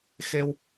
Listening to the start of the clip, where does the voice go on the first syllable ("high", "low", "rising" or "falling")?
high